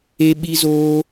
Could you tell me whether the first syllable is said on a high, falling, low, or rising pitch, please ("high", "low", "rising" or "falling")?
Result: high